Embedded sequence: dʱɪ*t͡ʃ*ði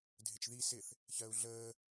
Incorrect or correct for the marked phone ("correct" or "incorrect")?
correct